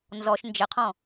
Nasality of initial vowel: oral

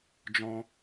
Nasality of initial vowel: nasal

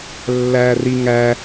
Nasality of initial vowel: oral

